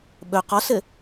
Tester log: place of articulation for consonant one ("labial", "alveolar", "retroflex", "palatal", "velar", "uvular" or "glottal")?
labial